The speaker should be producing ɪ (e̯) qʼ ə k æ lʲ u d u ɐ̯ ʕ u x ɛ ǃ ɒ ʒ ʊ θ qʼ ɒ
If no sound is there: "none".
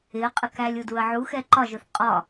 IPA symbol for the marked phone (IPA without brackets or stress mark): ɐ̯